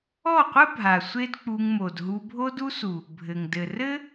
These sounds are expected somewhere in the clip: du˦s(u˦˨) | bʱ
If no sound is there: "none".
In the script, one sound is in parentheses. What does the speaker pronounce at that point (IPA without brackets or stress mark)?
u˨